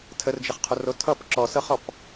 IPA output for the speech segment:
tʰərd͡ʒəχqʰoro tʰʌp ǁɔsɤχɔp

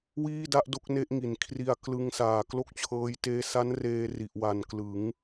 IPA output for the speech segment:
wiː˥˩da˥˩ʔdo˦˥k̚ ne˦˥ʔŋi˩˦n kʰri˧a̯klɯ˦˥ŋsaː˨˩ klo˥˩k̚t͡ɕʰɤː˦˥j teː˦˥ sa˦˥n reː˧ ri˨˩ʔwa˨˩nklɯ˩˦ŋ

